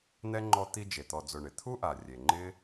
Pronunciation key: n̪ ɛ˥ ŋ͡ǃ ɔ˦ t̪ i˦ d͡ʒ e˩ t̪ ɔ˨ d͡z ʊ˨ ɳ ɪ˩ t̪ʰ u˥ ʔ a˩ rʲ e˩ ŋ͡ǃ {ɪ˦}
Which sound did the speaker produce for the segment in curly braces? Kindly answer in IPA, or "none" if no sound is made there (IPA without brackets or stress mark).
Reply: ɪ˥